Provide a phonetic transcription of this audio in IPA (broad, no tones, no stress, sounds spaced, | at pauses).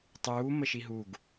tˤ uː m ə ʃ i ɦ u ɡ